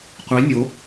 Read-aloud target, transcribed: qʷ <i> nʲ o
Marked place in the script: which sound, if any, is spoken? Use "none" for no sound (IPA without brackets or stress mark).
i